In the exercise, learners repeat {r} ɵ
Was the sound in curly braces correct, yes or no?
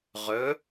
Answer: no